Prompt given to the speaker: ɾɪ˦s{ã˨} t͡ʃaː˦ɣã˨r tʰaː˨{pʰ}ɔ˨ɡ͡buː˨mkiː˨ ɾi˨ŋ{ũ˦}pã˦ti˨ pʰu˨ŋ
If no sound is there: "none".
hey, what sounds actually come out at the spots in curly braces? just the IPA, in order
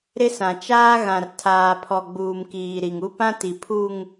ã˨, pʰ, u˦

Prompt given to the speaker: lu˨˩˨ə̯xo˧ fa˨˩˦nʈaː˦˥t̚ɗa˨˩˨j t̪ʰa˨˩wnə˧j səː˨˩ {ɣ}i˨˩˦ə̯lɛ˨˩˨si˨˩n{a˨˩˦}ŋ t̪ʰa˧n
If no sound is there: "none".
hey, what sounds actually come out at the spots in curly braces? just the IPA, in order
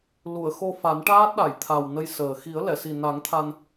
x, a˨˩˦

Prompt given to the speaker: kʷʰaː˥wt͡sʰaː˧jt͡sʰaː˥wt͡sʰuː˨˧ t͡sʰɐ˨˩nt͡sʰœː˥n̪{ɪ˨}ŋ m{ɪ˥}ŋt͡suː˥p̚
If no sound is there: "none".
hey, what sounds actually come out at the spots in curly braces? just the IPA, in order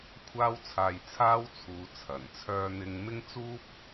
ɪ˥, ɪ˥

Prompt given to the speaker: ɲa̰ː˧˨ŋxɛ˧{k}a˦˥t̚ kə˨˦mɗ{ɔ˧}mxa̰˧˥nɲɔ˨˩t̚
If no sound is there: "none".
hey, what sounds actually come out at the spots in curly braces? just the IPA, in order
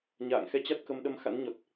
t͡ɕ, ə˧

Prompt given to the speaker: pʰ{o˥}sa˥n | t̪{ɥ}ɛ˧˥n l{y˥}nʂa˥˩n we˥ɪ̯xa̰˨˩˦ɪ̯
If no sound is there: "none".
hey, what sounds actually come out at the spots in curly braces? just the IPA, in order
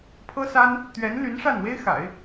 ɤ˥, ɥ, y˧˥

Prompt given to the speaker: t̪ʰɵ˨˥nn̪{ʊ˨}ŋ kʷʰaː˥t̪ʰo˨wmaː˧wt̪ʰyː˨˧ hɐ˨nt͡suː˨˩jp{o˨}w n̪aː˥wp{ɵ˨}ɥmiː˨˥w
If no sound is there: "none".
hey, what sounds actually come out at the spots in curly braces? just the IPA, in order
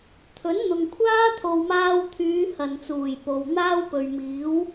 ʊ˨, o˨, ɵ˨

